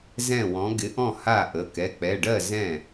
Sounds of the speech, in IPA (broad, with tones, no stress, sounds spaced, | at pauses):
z ɛ̃˥˩ w ɔ̃˨˥ ɡ ɪ˨˥ ʔ ɔ̃˥˩ h a˥˩ ʔ ə˩˧˩ k ɛ˩˧˩ k͡p ɛ˩˧˩ ɖ ɜ˥˩ z ɛ̃˥˩